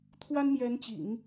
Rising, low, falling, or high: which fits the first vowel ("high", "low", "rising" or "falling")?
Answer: high